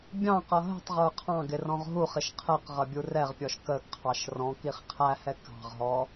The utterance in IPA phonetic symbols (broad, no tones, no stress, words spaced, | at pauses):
bʲɑ̃qʌ ɦə̤tˤʁə˞ qʰɑ̃ ɡɪrɔ̃ʁɦuχɪʃ qʰɛqʁʌ bʲurɛʁpʲɔʃ kəɡqʰɑʃ rɔ̃ kiχqʰæhɛ kɑ̤ʁɦɔ